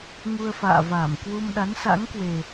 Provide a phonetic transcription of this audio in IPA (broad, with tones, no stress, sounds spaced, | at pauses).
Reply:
ŋ u˧ ə̯ f a̰ː˧˨ v aː˧˩ m k w u˧ m ɗ a˨˦ n s a̰˧˥ ŋ k w e˨˩